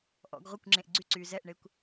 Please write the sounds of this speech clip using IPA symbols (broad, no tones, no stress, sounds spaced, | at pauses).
ʔ ɔ̰ ɡ ʁʷ ə kʷ ŋ͡ǁ ẽ ʔ ɡ͡ǀ y ǀ yː z ɛ ʔ ɳ e kʷ